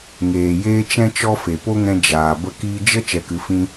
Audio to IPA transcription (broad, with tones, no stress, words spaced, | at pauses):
ŋeː˨jeː˦t͡ʃɛ̃˦t͡ʃɔ˦ fe˨po˦ŋɛ̃˧ d͡ʒaː˨ bə˦˨kiː˦ d͡ʒə˦ t͡ʃɛ˧kɨ˧ fĩ˦